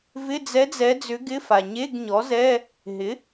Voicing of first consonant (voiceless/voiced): voiced